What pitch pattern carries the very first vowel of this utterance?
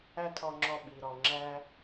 high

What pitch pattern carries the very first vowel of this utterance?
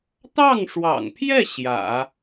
falling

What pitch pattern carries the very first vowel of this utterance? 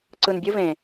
low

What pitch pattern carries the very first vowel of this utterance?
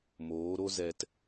rising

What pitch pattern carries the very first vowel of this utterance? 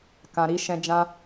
low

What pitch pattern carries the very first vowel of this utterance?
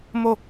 falling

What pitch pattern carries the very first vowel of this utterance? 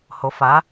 rising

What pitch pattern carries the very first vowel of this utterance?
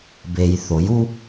low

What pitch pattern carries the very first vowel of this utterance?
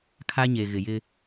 high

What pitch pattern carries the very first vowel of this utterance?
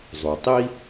low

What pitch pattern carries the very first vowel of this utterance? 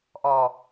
low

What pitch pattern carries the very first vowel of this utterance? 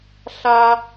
high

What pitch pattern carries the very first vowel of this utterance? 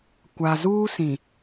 low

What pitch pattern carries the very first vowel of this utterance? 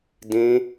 high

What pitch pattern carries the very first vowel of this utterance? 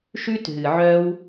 high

